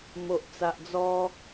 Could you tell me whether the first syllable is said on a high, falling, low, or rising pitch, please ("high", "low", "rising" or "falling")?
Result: low